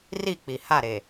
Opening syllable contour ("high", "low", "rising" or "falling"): falling